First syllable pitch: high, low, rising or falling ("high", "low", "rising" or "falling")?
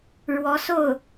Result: rising